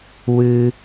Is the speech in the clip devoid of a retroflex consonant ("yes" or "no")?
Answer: yes